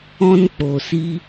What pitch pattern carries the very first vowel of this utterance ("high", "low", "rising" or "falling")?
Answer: high